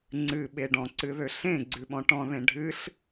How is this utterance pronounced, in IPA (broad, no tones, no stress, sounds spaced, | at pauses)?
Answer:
ŋ͡ǀ ɨ ɓ e ɖ ɔ̃ ǀ ɨ ð ø ɬ ẽ ɡ͡ǀ ʉ ɓ ɔ̃ ʈ ɔ̃ ð ẽ ɖʱ ɨ ɬ